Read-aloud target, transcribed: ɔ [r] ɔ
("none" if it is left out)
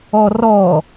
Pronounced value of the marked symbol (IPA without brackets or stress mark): r